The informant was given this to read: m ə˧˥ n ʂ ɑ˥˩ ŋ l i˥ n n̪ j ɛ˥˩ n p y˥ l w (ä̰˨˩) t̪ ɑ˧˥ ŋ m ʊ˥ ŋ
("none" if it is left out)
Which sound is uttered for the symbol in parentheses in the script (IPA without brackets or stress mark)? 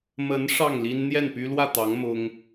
ä˥˩